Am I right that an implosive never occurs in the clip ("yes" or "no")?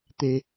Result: yes